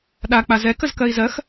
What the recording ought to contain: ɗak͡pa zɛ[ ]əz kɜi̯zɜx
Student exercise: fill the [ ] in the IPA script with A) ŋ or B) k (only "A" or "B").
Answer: B